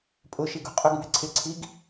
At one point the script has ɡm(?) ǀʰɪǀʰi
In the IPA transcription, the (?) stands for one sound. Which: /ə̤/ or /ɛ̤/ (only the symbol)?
ɛ̤